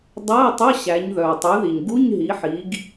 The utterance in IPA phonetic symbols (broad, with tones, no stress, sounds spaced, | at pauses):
dˤ æ˧˥˧ ɪ̯ tˤ ɵ˧˥˧ ɕ æ˩˧ ɲ ð œ˩ ʊ̯ tˤ y˩˧ ð i˩ ɲ ɡ u˧˥˧ ɲ ɦ i˩˧ ħ i˩˧ ɡ